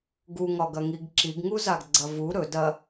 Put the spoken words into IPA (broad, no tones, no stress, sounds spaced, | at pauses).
ɡ u ŋ ɒ ɡ ɐ ŋ i ɡ ǁ i ɡ ŋ u z a ɡ ɡ͡ǀ ɐ v u ɾ ɵ d ɐ